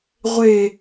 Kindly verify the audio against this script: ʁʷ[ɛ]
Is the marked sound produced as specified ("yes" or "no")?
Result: no